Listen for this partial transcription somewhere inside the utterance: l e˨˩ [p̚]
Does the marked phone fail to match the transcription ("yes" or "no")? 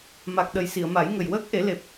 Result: no